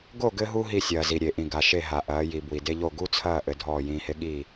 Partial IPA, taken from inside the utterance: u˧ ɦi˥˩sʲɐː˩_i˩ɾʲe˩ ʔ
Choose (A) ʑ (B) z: B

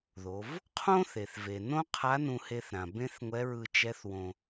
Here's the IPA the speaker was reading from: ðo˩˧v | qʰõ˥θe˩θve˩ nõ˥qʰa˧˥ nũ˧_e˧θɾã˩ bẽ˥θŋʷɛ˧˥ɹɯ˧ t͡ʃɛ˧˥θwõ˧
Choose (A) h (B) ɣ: A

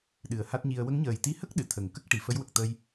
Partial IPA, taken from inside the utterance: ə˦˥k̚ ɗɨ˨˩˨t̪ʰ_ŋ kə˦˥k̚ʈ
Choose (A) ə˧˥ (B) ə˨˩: B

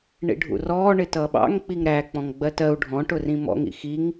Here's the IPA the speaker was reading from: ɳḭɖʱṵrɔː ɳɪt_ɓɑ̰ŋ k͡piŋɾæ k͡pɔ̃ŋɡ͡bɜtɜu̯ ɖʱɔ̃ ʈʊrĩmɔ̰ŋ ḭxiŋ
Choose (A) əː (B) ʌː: B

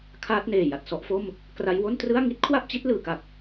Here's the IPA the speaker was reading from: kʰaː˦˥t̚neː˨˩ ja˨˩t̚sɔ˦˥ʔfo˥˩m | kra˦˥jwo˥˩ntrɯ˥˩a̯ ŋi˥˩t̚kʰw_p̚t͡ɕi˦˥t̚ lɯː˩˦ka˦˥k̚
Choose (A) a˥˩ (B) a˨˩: A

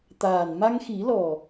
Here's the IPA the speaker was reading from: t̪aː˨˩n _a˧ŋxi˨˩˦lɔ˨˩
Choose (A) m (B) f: A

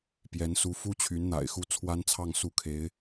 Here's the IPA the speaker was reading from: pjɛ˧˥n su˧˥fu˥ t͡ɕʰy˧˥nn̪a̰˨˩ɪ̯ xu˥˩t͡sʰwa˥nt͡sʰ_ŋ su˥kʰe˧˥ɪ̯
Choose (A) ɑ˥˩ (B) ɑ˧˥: A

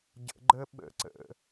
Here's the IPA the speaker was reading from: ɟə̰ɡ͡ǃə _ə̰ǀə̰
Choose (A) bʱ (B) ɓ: B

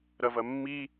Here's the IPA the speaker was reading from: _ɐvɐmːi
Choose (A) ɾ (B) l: A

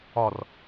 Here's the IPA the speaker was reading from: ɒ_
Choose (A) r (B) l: A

